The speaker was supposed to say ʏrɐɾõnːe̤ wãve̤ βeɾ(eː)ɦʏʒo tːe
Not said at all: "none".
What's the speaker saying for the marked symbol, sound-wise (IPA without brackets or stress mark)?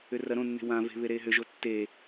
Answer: eː